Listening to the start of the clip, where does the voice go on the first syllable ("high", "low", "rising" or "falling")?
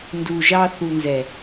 low